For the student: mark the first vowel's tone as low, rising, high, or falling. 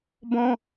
high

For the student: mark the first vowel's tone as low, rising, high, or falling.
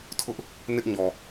high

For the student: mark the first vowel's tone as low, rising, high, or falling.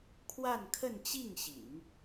falling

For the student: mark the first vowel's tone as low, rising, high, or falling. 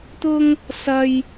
high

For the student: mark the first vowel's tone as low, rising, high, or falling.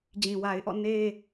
low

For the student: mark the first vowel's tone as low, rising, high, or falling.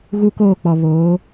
high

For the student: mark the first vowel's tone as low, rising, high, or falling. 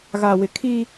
low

